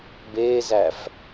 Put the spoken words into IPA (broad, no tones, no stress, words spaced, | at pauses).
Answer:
beːzæf